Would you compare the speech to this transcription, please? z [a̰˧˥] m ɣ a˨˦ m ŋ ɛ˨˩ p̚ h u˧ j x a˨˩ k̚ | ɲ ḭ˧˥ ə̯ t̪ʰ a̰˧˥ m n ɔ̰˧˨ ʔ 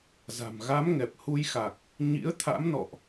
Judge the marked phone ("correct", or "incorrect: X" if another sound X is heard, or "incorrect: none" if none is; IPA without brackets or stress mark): incorrect: a̤˨˩